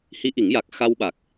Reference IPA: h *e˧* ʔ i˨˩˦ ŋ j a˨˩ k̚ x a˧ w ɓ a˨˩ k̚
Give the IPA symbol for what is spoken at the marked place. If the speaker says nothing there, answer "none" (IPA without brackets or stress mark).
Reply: i˧